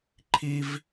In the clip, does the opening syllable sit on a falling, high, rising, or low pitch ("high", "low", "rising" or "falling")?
high